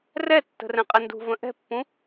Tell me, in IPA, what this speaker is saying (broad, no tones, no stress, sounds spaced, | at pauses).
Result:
r ɛ tː ə̤ r ɛ̃ qʼ ɛ n d ṳ v ə̃ ʔ ɛ̤ pː ũ